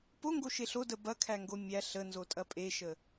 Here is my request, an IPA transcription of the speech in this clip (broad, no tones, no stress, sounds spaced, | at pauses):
p o ŋ ɡ o ʃ e ɬ o d ə b ɐ kʰ æ ŋ ɡ o mʲ æ ɬ ə n z o tʼ ɐ pʼ e ʃ ə